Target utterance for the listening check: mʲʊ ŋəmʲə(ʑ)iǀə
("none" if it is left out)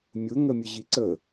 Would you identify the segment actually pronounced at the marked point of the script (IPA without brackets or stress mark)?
ʑ